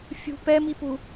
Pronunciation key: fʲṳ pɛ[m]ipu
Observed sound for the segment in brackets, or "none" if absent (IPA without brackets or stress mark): m